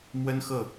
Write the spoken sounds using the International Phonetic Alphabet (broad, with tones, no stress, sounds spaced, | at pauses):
m w ə˥ n x ɤ˥˩